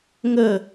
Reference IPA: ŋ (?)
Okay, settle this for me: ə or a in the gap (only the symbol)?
ə